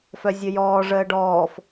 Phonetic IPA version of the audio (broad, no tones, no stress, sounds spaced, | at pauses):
f œ zʲ ə j ɔː ʐ əː ɖ ɔː f